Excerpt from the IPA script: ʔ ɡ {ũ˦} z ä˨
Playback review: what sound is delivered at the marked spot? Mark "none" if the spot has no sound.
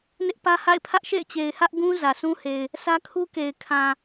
ũ˦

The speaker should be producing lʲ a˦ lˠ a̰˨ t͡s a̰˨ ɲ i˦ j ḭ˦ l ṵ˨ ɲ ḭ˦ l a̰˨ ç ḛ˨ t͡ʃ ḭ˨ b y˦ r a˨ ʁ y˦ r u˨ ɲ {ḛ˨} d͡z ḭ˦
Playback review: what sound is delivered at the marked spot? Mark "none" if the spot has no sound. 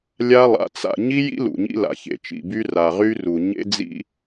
ḛ˦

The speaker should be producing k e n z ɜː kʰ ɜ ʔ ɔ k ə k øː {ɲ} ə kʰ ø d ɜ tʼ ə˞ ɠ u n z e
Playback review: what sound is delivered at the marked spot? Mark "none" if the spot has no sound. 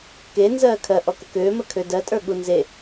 m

